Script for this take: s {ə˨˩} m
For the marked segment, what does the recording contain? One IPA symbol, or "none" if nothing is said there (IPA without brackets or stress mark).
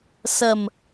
ə˨˩